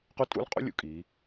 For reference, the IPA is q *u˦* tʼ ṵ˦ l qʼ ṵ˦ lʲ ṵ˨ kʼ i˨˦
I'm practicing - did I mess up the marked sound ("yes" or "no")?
no